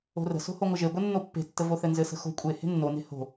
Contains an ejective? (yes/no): yes